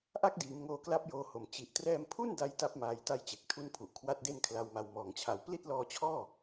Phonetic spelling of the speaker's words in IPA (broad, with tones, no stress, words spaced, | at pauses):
ʔa˦˥k̚diː˩˦m ŋoː˧kla˦˥p̚joː˧ho˨˩m t͡ɕi˨˩ʔtrɛː˧mpʰu˥˩n da˦˥jta˦˥p̚maː˧j ta˦˥jt͡ɕe˨˩k̚tʰu˦˥npʰu˨˩ʔ kʰwa˦˥t̚de˥˩nkʰla˧wma˧w mɔː˨˩ŋt͡ɕʰa˨˩w pli˥˩t̚lɔː˧t͡ɕʰɔː˥˩